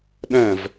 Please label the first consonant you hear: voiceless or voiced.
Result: voiced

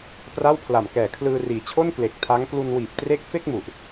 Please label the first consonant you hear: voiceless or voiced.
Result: voiceless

